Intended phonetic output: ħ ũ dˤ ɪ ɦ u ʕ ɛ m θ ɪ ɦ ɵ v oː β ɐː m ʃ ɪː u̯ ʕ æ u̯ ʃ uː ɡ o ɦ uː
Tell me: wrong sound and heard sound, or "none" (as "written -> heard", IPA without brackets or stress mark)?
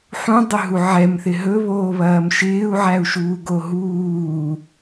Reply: v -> β